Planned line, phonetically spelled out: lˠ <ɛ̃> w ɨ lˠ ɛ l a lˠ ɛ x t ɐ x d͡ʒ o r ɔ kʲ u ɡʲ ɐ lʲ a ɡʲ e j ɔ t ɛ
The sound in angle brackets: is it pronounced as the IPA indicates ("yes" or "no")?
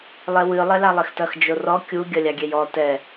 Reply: no